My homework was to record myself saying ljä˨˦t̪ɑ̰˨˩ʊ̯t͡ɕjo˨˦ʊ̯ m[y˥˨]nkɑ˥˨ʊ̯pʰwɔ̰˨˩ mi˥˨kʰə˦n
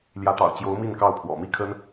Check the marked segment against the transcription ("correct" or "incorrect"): incorrect